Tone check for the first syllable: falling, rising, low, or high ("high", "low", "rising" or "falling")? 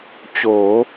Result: rising